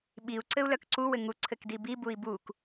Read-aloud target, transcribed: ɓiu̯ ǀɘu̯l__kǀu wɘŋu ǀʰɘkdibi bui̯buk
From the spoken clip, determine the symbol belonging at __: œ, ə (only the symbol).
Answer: œ